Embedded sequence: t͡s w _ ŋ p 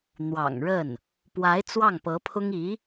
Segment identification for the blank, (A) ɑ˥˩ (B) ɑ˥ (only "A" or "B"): A